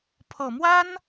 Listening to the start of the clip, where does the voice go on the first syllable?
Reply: low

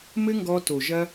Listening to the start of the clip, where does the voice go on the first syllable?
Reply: high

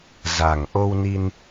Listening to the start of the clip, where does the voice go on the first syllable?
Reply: low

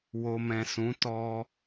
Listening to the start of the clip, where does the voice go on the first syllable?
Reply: low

